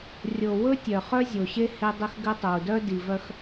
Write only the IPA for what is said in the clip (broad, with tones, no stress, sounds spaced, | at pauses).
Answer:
rʲ o˨ w ɵ˦ tʲ œ˨ χ œ˦ zʲ o˨ ɕ e˦ h e˦ dˤ ɘ˦ x ɡ ɘ˦ tˤ o˨ u̯ d œ˦ d i˨ v œ˦ x